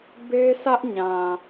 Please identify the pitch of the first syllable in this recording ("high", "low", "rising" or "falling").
high